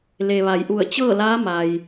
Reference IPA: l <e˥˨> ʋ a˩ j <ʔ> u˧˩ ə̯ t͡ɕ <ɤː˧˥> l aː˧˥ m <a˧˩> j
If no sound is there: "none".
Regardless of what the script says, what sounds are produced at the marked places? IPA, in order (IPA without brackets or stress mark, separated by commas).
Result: e˩, ʔ, ɤː˥˨, a˩